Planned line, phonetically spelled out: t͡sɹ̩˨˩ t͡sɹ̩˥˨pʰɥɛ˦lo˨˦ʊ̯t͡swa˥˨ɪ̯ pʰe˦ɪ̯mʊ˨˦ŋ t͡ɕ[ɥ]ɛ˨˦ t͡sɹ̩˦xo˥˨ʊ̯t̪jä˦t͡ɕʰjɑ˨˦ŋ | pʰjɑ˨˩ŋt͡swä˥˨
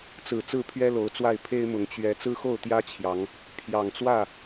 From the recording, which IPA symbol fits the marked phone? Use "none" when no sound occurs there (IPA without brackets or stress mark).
ɥ